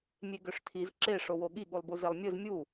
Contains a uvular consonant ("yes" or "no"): no